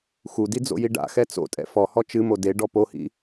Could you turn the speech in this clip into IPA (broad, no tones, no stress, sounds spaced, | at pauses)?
x u d i d͡z o̰ j i ɖ a̰ x ɛ t͡s o̰ tʼ ɛ̰ f ɔ h ɔ t͡ʃ ɨ m o d e ɖ ɔ p o h ḭ